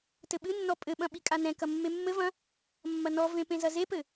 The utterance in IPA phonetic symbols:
t ɘ ɓ ɨ nː ɔ pʼ ɘ ɓ ɐ̃ ɓ i kʼ a n ɛ̃ k ɐ mː e mː ɘ v ɐ̃ | mː ɐ n ɔ v ẽ p ẽ z ɐ z e p ɘ

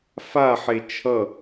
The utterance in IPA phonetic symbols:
f a ħ e t͡ʃʰ ʌ

